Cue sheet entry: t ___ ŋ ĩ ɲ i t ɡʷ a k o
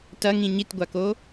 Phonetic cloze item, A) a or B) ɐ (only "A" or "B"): B